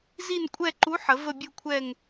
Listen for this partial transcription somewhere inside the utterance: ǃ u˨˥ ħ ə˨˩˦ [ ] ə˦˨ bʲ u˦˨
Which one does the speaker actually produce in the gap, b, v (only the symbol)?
v